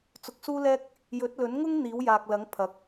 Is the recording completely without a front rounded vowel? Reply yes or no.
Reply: yes